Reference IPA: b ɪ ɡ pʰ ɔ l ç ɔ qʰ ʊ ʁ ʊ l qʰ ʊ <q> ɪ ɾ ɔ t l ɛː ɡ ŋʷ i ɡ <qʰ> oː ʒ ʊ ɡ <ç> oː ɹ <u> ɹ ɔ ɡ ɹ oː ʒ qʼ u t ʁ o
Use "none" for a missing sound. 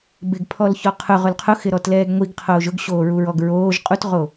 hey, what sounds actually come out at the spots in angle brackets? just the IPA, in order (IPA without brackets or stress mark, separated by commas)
x, qʰ, ɕ, u